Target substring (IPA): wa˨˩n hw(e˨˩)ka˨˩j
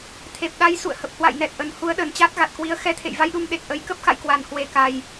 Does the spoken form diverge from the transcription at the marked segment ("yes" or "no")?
no